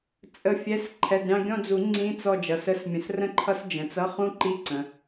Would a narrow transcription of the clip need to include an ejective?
yes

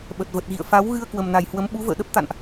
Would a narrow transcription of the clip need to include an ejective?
no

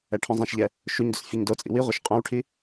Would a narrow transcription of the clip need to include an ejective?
yes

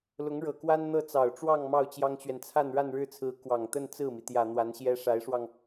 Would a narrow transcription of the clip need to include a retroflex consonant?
yes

